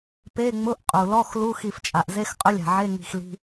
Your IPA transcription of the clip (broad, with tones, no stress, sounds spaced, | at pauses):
p e˧˥˧ ŋ͡m ʊ˧˥˧ ʔ qʼ u˩ l ɔ˧˥˧ x l u˧˥˧ x i˧˩ f t͡ʃʼ a˩ ʔ z e˧˥˧ x qʼ ʊ˧˥˧ lʲ a̤˩ ʕ e˧˥˧ ŋ i̤˧˩ x l i̤˧˥˧